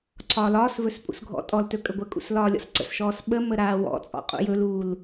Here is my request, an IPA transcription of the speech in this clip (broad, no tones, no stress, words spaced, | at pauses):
ǀʰɒːlɒːsvɵs pʼṵsɡʱɔ̰tʼɔltɵ kʼəɡʷəkʼṵs lɒːlʲɔ̰sǀə̰sʃɔːs ɓə məɾaːwɔ̰t͡sʼɔ̰ qʼṵjɵluːl